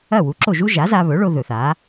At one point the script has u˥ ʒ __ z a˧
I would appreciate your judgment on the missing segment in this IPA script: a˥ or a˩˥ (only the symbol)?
a˩˥